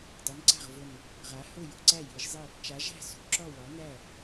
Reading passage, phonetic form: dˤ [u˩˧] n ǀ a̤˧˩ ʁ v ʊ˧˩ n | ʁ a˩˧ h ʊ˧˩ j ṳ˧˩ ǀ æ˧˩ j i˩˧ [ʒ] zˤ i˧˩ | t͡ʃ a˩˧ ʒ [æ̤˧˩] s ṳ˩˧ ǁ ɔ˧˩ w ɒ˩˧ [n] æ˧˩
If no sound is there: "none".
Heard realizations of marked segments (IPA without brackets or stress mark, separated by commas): u˩˧, ʒ, æ̤˧˩, n